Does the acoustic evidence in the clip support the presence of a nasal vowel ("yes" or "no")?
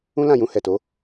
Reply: yes